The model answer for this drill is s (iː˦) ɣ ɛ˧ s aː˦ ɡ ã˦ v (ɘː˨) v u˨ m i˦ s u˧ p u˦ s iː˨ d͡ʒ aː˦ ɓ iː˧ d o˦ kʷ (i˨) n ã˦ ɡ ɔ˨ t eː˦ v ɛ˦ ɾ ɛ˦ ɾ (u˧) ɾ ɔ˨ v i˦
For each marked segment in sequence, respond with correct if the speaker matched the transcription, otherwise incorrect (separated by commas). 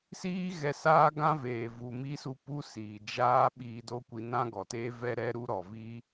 correct, incorrect, incorrect, incorrect